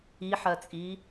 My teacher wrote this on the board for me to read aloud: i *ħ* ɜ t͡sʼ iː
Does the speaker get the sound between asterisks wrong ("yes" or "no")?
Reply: no